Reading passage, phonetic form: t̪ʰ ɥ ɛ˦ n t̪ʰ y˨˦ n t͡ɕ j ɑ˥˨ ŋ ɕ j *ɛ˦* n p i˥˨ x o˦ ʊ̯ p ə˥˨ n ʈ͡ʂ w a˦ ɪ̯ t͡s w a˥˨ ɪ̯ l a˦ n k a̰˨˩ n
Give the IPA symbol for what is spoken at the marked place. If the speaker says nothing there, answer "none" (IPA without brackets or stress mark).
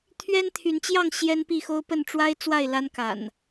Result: ɛ˦